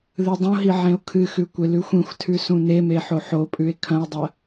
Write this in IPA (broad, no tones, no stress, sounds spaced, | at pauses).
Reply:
ð ɨ dˤ õ ɦ i ʕ ẽ o̯ kʰ ɨ x ʉ kʷ e l ʉ xʷ ĩ xʷ tʰ ʉ s ũ n e m e ħ o ħ o pʼ ʉ e̯ kʰ ɐ̃ e̯ dˤ ɐ